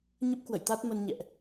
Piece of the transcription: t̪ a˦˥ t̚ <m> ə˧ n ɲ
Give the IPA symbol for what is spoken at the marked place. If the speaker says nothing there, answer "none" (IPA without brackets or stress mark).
m